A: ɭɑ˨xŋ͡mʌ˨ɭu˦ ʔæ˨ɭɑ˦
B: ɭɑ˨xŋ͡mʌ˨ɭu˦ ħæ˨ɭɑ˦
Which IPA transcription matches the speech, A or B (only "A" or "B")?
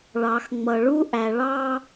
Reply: A